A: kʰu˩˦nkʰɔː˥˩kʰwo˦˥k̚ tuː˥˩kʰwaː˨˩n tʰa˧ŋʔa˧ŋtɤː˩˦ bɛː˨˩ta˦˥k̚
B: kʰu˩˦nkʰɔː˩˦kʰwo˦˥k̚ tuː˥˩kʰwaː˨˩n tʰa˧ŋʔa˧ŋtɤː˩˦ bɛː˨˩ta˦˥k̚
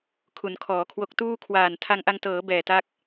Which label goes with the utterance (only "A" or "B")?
B